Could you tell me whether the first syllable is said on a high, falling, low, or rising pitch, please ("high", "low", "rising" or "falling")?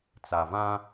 low